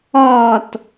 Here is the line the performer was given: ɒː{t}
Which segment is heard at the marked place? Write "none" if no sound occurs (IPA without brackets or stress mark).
t